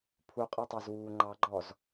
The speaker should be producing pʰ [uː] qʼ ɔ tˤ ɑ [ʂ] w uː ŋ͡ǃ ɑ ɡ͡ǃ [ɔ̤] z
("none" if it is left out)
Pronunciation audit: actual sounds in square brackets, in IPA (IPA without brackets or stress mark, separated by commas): u, z, ɔ